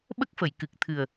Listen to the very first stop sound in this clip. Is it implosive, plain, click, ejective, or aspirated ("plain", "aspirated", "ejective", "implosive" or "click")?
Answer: implosive